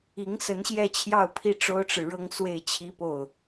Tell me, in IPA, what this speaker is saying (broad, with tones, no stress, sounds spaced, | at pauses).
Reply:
i˧˥ ŋ s ə˧˥ n ɕ j ɛ˥˧ t͡ɕʰ j ɑ˥˧ ʊ̯ pʰ i˥˩ ʈ͡ʂ o˥ ʊ̯ ʈ͡ʂ ɻ̩˨ ɻ ɤ˥ ŋ s w e˥˩ ɪ̯ t͡ɕʰ i˥ p o˥˩ ʊ̯